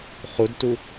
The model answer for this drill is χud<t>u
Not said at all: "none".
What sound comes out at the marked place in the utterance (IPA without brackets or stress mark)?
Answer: t